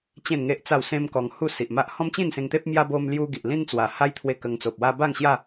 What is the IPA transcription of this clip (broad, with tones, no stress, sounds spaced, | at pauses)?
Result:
t͡ɕ ẽ˥˧ n ŋ e˦ ʔ t͡s a˥˧ w s ẽ˦ m k ɔ˧ ŋ h u˥˧ s i˨ ʔ m a˦ ʔ h ɔ̃˦ m t͡ɕ ĩ˥˧ n s ẽ˧ ŋ t̪ e˦ p̚ m j a˦ b o˦ m l j u˦ ɡ i˨ ʔ l ĩ˦ n t͡s w a˨˩ h a˦ j t̪ʰ w e˧ k ə˧ ŋ t͡s o˨ p̚ w a˦ b a˥˧ ŋ ɕ j a˥˧